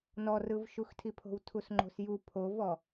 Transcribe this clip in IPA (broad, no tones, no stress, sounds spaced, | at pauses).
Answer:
n ɔ r ɯ v ʃ u x tʰ i pʰ o̤ w tʰ u s ŋ͡ǃ o̤ s j u pʰ o v ɔ